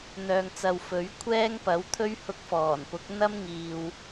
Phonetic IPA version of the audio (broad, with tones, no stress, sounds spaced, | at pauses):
n̪ œː˧ ŋ t͡s ɐ˧ w f ɵ˨˥ ɥ kʷʰ ɛː˥ ŋ p ɐ˨˥ w t̪ʰ ɵ˥ ɥ h ʊ˧ k̚ f ɔː˨˩ n p ʊ˨˥ k̚ n̪ ɐ˥ m ŋ iː˨ w